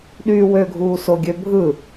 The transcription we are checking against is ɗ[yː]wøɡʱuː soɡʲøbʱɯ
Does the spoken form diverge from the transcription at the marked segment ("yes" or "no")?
no